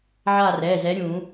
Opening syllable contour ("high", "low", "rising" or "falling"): falling